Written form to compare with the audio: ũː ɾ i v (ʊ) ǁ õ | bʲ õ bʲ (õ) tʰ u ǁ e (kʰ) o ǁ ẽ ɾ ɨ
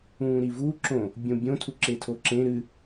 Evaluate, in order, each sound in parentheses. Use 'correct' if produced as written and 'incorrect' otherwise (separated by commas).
incorrect, correct, incorrect